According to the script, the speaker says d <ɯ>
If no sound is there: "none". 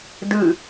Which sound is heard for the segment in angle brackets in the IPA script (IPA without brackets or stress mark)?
ɯ